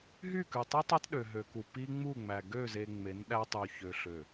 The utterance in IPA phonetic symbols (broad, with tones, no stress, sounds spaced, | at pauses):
ɦ y˦˨ k ʉ˨ tˤ i˦ tˤ ɑ˦ t ɗ ø˨ ɦ ø˨ k u˨ p i˦ ŋ͡m u˦˨ ŋ͡m æ˨ ɡ ø˦˨ z e˨ ŋ͡m e˨˦ n ɗ æ˦ tˤ u˨ ç ø˨ ɬ ø˨